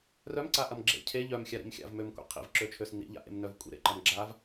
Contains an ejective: yes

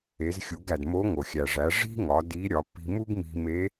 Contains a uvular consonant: no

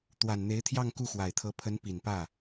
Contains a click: no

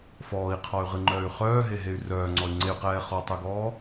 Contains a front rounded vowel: yes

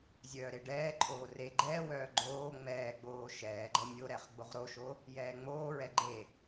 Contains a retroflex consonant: yes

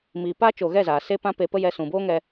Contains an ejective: no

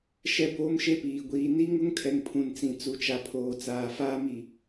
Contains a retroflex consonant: no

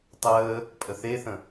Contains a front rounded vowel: no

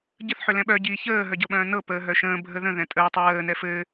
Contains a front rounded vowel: yes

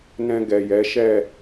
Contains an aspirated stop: no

